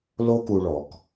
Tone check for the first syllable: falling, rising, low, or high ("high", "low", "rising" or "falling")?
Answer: high